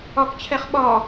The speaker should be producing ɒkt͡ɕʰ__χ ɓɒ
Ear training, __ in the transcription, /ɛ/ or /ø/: ɛ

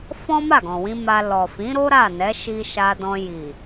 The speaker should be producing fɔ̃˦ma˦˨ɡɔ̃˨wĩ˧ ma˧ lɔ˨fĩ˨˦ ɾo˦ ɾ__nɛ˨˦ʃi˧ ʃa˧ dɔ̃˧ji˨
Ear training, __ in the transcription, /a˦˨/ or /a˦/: a˦˨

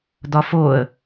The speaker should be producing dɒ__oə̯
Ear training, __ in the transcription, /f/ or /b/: f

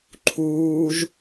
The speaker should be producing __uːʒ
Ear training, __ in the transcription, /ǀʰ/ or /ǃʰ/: ǃʰ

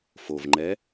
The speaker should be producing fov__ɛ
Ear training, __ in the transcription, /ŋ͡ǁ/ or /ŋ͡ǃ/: ŋ͡ǃ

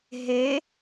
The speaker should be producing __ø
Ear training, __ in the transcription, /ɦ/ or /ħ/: ɦ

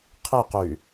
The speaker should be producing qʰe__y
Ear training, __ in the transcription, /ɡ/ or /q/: q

